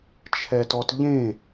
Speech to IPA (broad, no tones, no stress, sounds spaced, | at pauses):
t͡ʃʰ ɛ t ɔ t ʎ ẽ